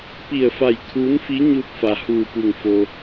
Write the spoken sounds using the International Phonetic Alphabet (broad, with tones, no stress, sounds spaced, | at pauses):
p i˧˩ ə̯ f a˧˩ j kʰ uː˧˥ n f i˧˥ ɲ u˧ t̚ f a˩ h uː˧˩ p u˧˩ ŋ f o˧